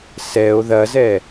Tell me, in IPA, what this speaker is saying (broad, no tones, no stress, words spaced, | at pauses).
sɛo̯ ðɐzɛ